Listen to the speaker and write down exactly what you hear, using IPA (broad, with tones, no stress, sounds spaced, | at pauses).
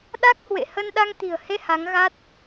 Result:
ɗ a˦˥ k̚ h w ḛ˧˨ h ə˧ n ɗ a˧ ŋ t̪ i̤˨˩ ə̯ h e˧ h a˨˦ ŋ ɣ a˦˥ t̚